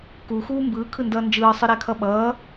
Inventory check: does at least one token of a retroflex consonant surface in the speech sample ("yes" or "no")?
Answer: no